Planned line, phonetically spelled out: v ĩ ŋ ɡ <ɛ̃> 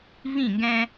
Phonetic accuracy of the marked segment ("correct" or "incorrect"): correct